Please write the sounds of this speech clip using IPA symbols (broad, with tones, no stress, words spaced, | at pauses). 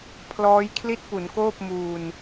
pʰlɔː˦˥j kʰli˥˩t̚ pu˩˦nkoː˥˩p̚ muː˧n